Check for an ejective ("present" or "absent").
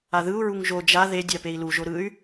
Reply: absent